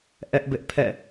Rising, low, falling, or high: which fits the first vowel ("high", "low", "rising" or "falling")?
high